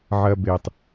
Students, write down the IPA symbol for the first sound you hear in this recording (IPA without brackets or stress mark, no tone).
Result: ʕ